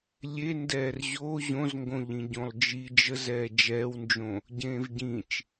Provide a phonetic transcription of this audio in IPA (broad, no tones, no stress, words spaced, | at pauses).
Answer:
lʲe ndɛːrʑo ʑõzŋɡõʎĩ ɟõlˠd͡ʒi d͡ʒəzɛː d͡ʒɛːwnd͡ʒõ | ɟẽːvɟĩt͡ʃ